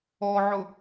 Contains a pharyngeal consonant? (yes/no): yes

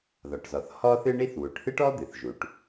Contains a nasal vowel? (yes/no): no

